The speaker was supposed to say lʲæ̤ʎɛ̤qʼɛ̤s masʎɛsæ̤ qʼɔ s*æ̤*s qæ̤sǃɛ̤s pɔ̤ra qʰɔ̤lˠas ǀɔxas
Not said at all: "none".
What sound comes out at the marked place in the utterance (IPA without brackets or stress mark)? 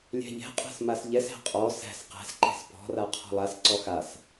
æ̤